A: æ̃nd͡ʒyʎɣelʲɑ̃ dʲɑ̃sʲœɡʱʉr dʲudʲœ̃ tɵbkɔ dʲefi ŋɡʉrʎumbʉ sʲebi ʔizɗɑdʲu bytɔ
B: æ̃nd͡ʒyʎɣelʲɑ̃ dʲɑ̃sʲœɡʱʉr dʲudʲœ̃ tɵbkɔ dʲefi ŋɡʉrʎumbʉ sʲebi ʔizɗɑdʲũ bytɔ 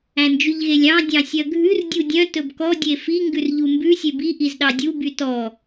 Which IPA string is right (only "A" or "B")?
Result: A